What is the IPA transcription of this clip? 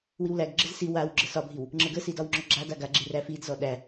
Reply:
w i w l æ ɡ ɡ͡ǁ ə z s i w a w ɡ͡ǁ ə s ɒ bʱ i w | ŋ͡ǁ ə ɡ ə s i d ɒ w ŋ͡ǁ ɔ ɡ͡ǁ a d a ɡ a ɡ͡ǁ i r æ f i d z ɔ ɗ æ

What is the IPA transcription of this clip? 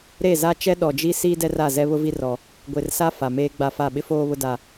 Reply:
ɾ e˦˨ z a˦ t͡ʃ ɛ˦ ɗ ɔ˨ d͡ʒ i˦ s iː˦ d ɛ˦ r a˦˨ z ɛ˦ β ʊ˦ v i˦ r ɔ˦ | ɡʷ e˨ r s a˦ f a˨ m eː˦ ɡ͡b a˦˨ f a˦˨ ɓ ɪ˦ f oː˦ β ʊ˦ d a˦

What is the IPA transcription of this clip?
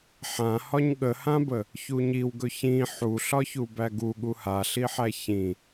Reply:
ħ ã h ɒ ɲ ɠ ə h ã b ə | ç u ɲ i w ɡ ɵ ç ĩ ħ u ɬ ɒ ç u b æ ɡ u ɠ u h a ɬ i ħ æ ç ĩ

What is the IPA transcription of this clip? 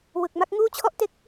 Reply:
w ɯ˨˩ k̚ m a˥˩ k̚ ŋ uː˥˩ t͡ɕʰ ɔ˦˥ ʔ t e˦˥ k̚

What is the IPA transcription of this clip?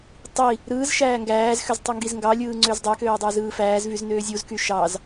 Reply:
tˤ i | ɾ ɯː z ʃ æː ŋ ɡ æː z x ø z tˤ u ŋ ɡ i z ŋ ɡ ɑ lʲ ɯː ŋ͡ǀ ø z dˤ æ k øː dˤ æ z ɯː f æː z v y z n øː zʲ u z k y ʃ ɑ z

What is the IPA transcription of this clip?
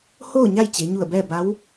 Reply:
h oː˥˨ ɲ a˥˨ j t͡ɕ e˩˧ ɲ u˧˩ ə̯ b ɛː˥˨ b a˧˥ w

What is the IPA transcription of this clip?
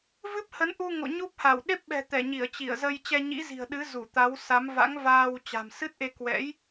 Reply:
v ɨ˦˥ p̚ h ə˨˦ n ʔ u˧ ŋ o̰˧˨ ɲ u˦˥ p̚ h a˧˩ w ɗ e˦˥ p̚ ɓ ɛ̤˨˩ t̪ ɛ˧˩ ɲ i˧˩ ə̯ t͡ɕ i˧˩ ə̯ z ə˧ j t͡ɕ ɛ˧ ɲ ḭ˧˥ z i̤˨˩ ə̯ ɗ ɨ˨˦ z u˧˩ t̪ a˨˦ w s a˨˦ m v a̰˧˥ ŋ v aː˧ w t͡ɕ a̤˨˩ m s ɨ˦˥ t̚ ʔ e˧ k w ɛ̰˧˥ j

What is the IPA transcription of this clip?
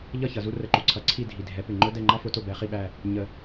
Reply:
ʎ ʌ˦˨ ç ʌ˩ z u˥ r ə˨˦ ǃ u˩ ǀʰ ʌ˨˦ ǀʰ i˦˨ dʱ i˩ dʱ ɛ˨˩˦ p ɪ˩ ŋ͡ǃ ʊ˥ d ɛ˦˨ ŋ͡ǃ ɑ˥ f ʊ˨˩˦ t ʊ˦˨ b ɛ˨˩˦ χ i˦˨ ɓ æ˦˨ | ɲ ə˨˩˦

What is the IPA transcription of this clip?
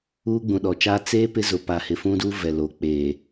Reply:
uː˦ ɡ͡b ũ˨ ɗ ɔ˨ t͡ʃ aː˦ t͡s eː˦ p ɪ˦ z ʊ˨ p a˨ h ɪ˨ f ũ˦ d u˦ v ɛ˨ l o˨ k͡p eː˨

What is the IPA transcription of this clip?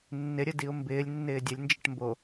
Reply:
nː ɪ ɾʲ ə d i ʊ̯ m b ɪː lʲ nː ɪː dʲ ə lʲ n d͡ʒ ɪ ʈ m b o

